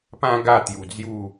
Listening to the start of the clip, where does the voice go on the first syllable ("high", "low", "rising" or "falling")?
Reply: high